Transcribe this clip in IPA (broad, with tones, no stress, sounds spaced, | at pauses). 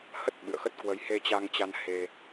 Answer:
h ə˦˥ t̚ ɓ ɨ̰˧˨ ə̯ x ə˦˥ t̚ k w ə˧ j h e˧ t͡ɕ a˧ ŋ t͡ɕ a˧ n h e˧